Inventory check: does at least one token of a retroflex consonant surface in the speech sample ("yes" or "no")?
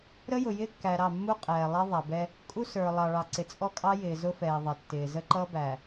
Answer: yes